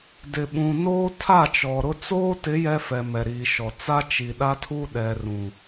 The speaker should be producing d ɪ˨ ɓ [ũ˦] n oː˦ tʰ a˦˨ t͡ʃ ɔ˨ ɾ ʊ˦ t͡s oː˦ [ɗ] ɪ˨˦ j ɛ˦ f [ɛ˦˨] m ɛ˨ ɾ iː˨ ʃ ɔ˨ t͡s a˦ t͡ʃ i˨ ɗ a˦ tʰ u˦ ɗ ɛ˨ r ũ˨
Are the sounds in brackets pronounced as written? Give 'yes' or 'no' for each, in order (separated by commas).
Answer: no, no, no